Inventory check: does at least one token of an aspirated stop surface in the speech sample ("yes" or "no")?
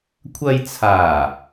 yes